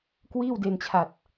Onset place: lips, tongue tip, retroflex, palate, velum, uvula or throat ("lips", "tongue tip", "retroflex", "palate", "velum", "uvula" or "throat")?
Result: velum